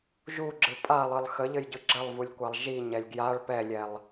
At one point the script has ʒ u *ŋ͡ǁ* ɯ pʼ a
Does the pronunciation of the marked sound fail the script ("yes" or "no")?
yes